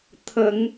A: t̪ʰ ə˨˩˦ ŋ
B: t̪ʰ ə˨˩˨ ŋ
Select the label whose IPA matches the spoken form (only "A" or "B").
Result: A